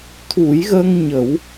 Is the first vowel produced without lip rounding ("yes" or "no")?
no